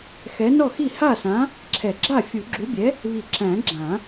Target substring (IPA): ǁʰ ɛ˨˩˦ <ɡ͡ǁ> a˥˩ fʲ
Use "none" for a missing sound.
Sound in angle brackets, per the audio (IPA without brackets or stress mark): ɡ͡ǁ